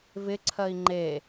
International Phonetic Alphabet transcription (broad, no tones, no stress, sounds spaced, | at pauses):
v ɪ ǀʰ ɜ i̯ ŋ͡ǃ e